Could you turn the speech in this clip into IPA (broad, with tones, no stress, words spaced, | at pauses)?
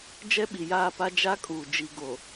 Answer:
d͡ʒɛ˦ɓi˨jaː˦˨pa˦ d͡ʒa˦kʼuː˨ d͡ʒi˨ɡo˨